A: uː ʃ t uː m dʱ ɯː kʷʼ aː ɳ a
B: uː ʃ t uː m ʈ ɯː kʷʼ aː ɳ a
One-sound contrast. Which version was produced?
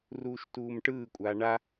B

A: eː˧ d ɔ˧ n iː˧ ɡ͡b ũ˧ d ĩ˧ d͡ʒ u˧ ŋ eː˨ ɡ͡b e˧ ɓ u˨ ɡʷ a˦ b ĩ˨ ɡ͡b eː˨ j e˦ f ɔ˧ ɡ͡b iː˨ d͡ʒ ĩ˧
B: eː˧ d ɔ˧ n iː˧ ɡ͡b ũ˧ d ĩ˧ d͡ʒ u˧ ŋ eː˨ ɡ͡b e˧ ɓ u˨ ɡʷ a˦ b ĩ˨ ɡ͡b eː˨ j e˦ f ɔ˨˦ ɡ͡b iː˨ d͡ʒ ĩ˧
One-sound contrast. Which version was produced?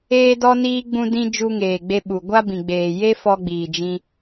A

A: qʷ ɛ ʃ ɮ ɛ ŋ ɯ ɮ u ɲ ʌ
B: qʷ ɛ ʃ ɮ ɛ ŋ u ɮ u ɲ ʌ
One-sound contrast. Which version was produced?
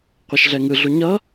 A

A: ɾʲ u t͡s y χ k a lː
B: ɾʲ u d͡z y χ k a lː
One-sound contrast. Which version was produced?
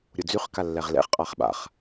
B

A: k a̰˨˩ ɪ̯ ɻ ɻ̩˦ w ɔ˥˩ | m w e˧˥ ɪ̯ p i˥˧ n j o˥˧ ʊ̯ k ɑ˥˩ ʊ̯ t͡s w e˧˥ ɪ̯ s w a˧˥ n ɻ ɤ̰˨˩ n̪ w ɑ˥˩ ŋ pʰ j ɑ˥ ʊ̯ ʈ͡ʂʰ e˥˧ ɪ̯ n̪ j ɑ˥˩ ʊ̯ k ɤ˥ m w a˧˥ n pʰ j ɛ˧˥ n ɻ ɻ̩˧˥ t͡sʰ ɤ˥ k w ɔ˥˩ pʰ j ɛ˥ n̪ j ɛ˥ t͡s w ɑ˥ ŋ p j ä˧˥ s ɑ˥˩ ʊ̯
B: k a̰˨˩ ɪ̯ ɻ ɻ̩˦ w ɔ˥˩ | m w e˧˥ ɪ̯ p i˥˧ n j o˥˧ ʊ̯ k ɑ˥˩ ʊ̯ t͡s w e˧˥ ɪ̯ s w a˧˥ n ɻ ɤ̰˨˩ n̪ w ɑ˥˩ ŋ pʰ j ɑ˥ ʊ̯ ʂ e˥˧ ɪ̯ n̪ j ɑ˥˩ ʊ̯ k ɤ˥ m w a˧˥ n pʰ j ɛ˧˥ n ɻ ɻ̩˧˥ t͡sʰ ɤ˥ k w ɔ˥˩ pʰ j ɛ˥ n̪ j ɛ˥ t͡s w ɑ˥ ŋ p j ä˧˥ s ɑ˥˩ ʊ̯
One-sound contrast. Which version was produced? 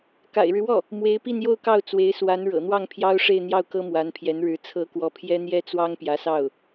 B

